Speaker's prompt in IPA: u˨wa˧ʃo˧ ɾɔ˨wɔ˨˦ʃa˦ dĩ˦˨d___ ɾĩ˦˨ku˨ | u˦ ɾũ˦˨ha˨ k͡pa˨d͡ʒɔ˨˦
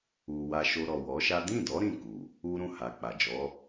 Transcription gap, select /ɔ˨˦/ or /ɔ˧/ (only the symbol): ɔ˨˦